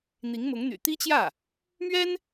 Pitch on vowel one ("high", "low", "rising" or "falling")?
rising